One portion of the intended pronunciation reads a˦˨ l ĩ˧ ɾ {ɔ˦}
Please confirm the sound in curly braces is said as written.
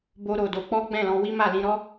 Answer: yes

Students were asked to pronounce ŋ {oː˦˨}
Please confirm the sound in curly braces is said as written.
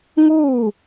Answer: no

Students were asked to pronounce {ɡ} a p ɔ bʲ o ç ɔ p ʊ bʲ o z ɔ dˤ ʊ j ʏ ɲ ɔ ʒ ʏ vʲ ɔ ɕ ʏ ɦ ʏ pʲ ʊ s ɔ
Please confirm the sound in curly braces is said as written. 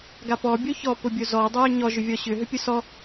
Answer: yes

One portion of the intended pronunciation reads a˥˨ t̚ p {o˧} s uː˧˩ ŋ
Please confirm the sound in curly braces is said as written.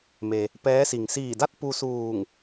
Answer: no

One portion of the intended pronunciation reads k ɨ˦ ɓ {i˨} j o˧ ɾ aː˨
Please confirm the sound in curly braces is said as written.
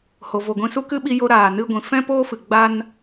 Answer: no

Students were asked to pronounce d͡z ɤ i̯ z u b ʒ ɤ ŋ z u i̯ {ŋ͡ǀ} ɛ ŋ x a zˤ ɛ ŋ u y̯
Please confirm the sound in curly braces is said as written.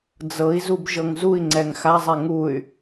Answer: yes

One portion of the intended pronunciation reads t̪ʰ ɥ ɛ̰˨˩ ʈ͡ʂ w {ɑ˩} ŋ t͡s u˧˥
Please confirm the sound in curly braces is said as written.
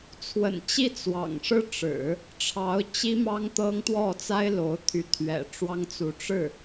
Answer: no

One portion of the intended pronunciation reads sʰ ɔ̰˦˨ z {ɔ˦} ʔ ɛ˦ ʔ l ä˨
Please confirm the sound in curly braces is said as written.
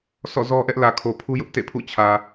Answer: yes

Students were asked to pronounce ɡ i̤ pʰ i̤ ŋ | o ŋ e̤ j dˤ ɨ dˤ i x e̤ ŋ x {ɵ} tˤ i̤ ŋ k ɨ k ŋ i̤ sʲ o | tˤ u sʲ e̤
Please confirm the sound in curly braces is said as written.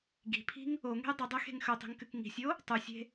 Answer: yes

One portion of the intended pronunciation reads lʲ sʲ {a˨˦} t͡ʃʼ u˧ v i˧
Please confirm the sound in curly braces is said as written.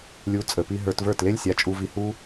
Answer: yes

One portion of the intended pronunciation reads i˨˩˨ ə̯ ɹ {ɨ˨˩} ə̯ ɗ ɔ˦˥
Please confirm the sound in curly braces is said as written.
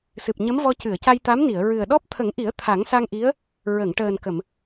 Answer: yes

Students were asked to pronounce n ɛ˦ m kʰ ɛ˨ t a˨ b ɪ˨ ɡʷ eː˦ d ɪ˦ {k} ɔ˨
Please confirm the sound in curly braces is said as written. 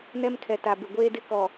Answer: yes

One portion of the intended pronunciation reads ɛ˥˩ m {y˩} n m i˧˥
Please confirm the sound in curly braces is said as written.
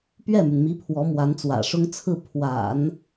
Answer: yes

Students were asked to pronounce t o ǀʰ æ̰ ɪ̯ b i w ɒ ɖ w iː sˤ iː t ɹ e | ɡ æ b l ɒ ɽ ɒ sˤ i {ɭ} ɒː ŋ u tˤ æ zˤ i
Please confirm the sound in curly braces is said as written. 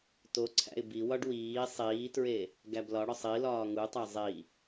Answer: no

